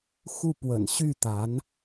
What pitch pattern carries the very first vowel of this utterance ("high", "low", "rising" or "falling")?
falling